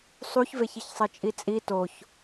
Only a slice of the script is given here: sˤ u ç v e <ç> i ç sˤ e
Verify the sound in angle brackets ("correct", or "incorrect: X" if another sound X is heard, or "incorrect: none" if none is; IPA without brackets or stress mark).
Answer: correct